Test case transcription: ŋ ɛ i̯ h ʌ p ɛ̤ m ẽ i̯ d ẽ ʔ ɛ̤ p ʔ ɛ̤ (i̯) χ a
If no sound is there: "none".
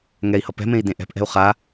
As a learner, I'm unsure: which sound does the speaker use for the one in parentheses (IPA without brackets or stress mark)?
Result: u̯